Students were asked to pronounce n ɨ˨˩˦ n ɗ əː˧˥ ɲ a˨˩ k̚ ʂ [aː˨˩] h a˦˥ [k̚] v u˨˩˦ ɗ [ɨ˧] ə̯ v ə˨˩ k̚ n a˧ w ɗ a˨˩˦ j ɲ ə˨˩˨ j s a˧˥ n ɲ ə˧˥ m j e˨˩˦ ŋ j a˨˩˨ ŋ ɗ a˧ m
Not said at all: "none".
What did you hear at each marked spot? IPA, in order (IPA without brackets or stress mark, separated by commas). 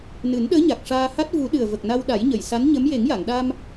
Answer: aː˧, t̚, ɨ˨˩